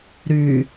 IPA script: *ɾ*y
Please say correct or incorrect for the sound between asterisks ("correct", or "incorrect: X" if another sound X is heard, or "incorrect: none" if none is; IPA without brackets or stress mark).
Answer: correct